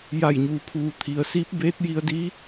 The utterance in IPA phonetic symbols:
j a˧˩ j ɲ uː˩ pʰ uː˩ t̪ʰ i˩ ə̯ s iː˧˥ p̚ b eː˧˥ t̚ j i˧ ə̯ d i˧˥

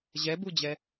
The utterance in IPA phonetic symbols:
ʑ ɛ b u d͡ʑ ɛ

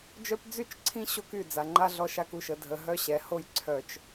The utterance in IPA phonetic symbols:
d͡ʒ œ˦ p d͡z y˦˨ t͡ʃ ǀʰ ĩ˦ ɕ o˦ k y˦˨ d͡z a˨ ŋ͡ǃ a˦ ɮ ɔ˦ ʃ a˦ k u˦˨ ʃ ə˨ dʱ ə˨ ɦ œ˦ ɕ ɛ˨˦ h o˦ j ǀʰ œ˨ t͡ʃ

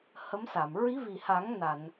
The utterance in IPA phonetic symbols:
h ə˧˥ m s a˨˩˨ m ɹ i˧˥ v i˨˩ h a˨˩˦ ŋ n a˨˩˨ n

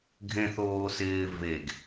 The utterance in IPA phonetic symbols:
ɡʱ ẽ θ oː s ɪː v e ɡ

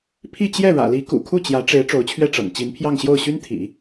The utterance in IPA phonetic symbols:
pʰ i˥˧ t͡ɕ j ɛ˥˩ ɻ ä̰˨˩ l i˧˥ k ṵ˨˩ kʰ u˥˩ t͡ɕ j ä˧˥ ʈ͡ʂ e˧˥ ɪ̯ ʈ͡ʂ o˧˥ ʊ̯ t͡ɕʰ ɥ ɛ˥˩ ʈ͡ʂ ɤ̰˨˩ ŋ t͡ɕ i˧˥ n pʰ j ɑ˥˧ ŋ ɕ j o˥˩ ʊ̯ ɕ y˥ n t̪ʰ ḭ˨˩˦

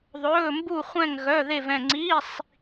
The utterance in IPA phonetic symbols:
ðˤ ɵː˧˥˧ m b u˥˧ χʷ ɛ̃˥˧ ŋ ɣ œ˧˥˧ ð e˥˧ v ɛ̃˥˧ ŋ͡ǀ i˧˥˧ sˤ

